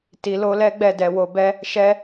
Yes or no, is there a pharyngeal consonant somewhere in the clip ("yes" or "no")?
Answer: no